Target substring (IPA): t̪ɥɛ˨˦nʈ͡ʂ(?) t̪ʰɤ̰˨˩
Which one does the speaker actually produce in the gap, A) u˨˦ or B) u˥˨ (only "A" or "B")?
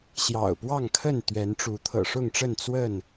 A